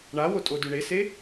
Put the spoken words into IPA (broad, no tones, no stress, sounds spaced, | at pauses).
ɳ a w o tʼ o d ʉ ɳ e s e